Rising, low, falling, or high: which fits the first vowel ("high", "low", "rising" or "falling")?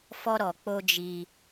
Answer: high